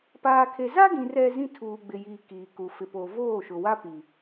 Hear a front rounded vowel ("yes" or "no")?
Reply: no